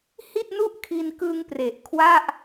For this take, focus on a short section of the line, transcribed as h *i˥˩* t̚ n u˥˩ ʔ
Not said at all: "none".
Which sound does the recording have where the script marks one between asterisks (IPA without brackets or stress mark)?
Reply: i˥˩